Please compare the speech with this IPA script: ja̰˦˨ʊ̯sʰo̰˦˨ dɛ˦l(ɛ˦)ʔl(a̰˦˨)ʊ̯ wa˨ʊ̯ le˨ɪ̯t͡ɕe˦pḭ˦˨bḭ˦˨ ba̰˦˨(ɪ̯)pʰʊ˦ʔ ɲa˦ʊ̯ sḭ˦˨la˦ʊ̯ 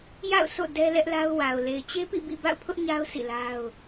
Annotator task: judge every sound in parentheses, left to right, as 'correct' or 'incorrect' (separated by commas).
correct, incorrect, incorrect